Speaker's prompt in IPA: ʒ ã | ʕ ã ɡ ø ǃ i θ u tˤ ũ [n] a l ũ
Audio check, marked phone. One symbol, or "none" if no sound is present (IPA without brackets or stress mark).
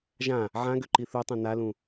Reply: n